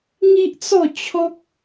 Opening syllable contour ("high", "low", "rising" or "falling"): high